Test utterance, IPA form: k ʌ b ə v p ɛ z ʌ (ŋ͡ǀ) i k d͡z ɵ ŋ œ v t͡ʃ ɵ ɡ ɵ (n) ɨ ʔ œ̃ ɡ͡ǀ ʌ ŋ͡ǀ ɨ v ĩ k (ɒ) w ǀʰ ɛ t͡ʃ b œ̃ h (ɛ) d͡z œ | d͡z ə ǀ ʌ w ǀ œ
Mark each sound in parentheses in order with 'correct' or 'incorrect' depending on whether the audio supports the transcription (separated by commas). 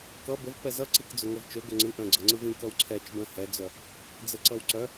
incorrect, incorrect, incorrect, correct